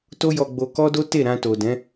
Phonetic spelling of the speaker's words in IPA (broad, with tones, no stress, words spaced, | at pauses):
to˦jɔ˧ɡ͡bo˧ kɔ˦do˦ te˦˨ɾã˧to˨dɛ̃˨˦